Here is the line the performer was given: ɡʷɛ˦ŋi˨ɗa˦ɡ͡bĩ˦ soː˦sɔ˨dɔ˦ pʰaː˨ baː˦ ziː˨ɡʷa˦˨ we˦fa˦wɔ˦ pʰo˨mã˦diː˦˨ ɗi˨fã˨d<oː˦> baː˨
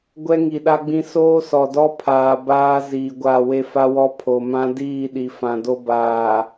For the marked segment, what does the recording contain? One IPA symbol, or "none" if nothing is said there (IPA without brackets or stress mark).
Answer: o˦